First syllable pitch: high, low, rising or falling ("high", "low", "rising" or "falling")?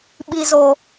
low